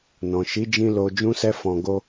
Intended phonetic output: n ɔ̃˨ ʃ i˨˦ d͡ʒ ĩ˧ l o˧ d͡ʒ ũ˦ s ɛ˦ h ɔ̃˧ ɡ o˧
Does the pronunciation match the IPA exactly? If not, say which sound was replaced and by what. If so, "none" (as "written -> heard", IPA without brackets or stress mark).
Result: h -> f